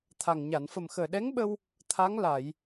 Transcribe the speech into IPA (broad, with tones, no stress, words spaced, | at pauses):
t̪ʰa˨˩ŋ ɲa˨˩˨nfə˨˩mxəː˨˩ ɗɛ˧˥ŋɓə˧w | t̪ʰa˧˥ŋ la˨˩˨j